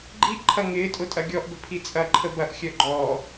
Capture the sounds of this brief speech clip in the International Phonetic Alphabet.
ɡ͡ǃ i ʔ ǃʰ ɐ ŋ ɪː tʼ ʊ tʼ ɐ ɡʲ ɔ ʔ b ə̤ pʰ i t͡sʼ ɐ ǃʰ ə b ɐ ʔ xʲ œ ɡ͡ǃ ɔː

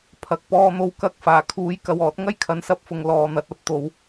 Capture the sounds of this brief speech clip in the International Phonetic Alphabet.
pʰ ɐ˨ k̚ p ɔː˧ n̪ o˧ w k ɐ˧ k̚ f aː˨˩ kʰ uː˨˥ j k ɐ˨ w ɔː˨˥ t̚ ŋ ɐ˥ j kʰ ɐ˨˥ n s ɐ˧ p̚ f ʊ˨ ŋ l ɔː˨ n̪ ɐ˨˥ t̚ ɐ˨˥ p̚ t̪ o˨˥ w

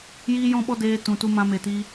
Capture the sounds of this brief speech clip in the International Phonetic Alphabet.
j iː˦ j ɔ̃˦ ɓ ɔ˦ d eː˧ t ũ˨ t u˧ m ã˧ m e˨ t iː˧

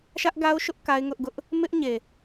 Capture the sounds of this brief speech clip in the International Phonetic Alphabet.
ʃ ä˦ ʔ ɡ a˦ ʊ̯ ʃ ʊ˦ ʔ k a˦ ɪ̯ ŋ ʊ˦ ʔ ɡ ʊ˦ ʔ | m ɪ˦ ʔ ɲ e˨

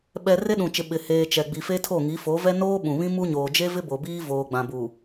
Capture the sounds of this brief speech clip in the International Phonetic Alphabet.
ɓ ɛ˨ r e˦ ɗ ũ˨ t͡ʃ ɪ˨ ɓ ɪ˨ h eː˨ t͡ʃ ɛ˨ ɡ͡b i˨ f e˦ tʰ o˦˨ ŋ i˨˦ f o˨˦ v ɛ˦ n oː˦ ɓ ũ˨ β ĩ˦ m u˦ ɲ oː˨ d͡ʒ e˦ v ɪ˦ b o˨ b iː˦ v oː˨ ɡ͡b ã˨ b u˨

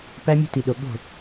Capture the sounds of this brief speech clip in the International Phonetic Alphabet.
p æ˦ mʲ o̤˦ t i˨ ɗ o˨ ɠ o̤˦˨

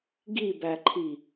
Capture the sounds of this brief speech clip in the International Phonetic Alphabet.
ɡ i b æ ǃʰ i

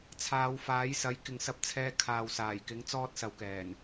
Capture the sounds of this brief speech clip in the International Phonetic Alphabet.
t͡sʰ aː˨˧ w f aː˨˥ j s ɐ˨˥ j k ɪ˨ ŋ s ɐ˧ p̚ t͡sʰ ɛː˧ kʰ aː˨ w s aː˨˩ j k ɪ˨˥ ŋ t͡s ɔː˥ t̚ s ɐ˨˧ w k ɛː˨˩ n

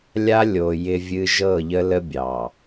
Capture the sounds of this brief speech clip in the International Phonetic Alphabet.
lʲ a˦ lʲ o˨ j ɪ˦ vʲ ɨ˦ ʒ ɤ˦˨ ʎ ə˦ l ə˦ bʲ ɑ˨

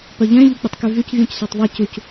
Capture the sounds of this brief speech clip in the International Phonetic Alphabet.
p œ ʎ ɛ̃ ʎ u k͡p y tˤ k y v y c vʲ ũ c s œ tˤ ðˤ e c u c

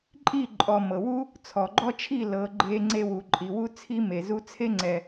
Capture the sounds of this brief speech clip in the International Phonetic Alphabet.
ǃʼ i˦˨ ǃʼ ɔ˨ m ɤ˨ w u˦ | t͡sʰ ɔ˨ ɡ͡ǃ ɔ˦ t͡ʃʰ i˦˨ l ɤ˨˦ ɡ͡ǃ e˧ ŋ͡ǀ e˧ w u˨ ǃʼ i˨ w u˦ t͡sʰ i˦ m e˨ z u˧ t͡sʰ e˦ ŋ͡ǀ ɛ˨

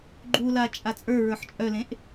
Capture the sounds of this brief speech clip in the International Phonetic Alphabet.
ɡ͡ǃ u l a t͡ʃʼ a t͡sʼ ə˞ ɹ ə˞ ħ t͡ʃʼ œ l ẽ ʔ

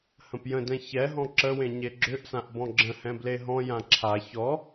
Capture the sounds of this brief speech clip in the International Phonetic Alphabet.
h ə̃ p j ə̃ d ɛ̃ ç ɛ ɦ ɔ̃ ǁ ə w ẽ ɲ e ɡ͡ǁ ʏ ʔ s ã ʔ b ɔ̃ ɡ͡ǁ ə̃ h ɛ̃ b l e ɦ ɔ̃ j ã ǁʰ a ç ɔ

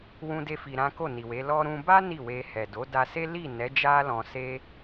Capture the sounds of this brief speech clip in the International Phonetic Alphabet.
w ũ˦ d e˦ f i˧ ɾ ã˦ k o˦˨ n i˨ w e˨˦ l ɔ˧ ɾ ũ˧ b a˦ n i˦˨ w e˧ h ɛ˨ d o˨˦ d a˧ s e˦ l i˦˨ n ɛ˨˦ d͡ʒ a˦ l ɔ̃˧ s e˦

